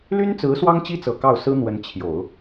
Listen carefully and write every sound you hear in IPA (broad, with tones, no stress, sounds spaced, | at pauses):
l y˥ n t͡s ɹ̩˧˥ s w ɑ˥ ŋ t͡ɕ i˥ t͡s ɤ˨˩ k ɑ˥˩ ʊ̯ s ɹ̩˥ n̪ w ə˧˥ n t͡ɕʰ j o˨˩˦ ʊ̯